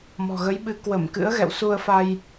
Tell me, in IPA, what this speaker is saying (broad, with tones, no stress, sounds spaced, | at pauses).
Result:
m ɔ̤˨˩ ɣ ə˨˦ j ɓ ɨ˨˦ k w ə˧˩ m k ɨ̰˧˥ ə̯ ɣ ɛ̰˧˨ w s u˧ ə̯ f a˧ j